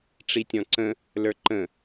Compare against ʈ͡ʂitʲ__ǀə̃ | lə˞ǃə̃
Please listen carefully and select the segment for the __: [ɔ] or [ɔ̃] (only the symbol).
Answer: ɔ̃